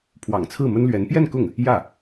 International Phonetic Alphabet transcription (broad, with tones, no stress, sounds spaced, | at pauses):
pʰ w ɑ̰˨˩ ŋ t͡sʰ ɹ̩˥˩ m ə˥ n l ɥ ɛ˧˥ n p j ɛ˥˧ n k ʊ˥˩ ŋ | j ä˥˩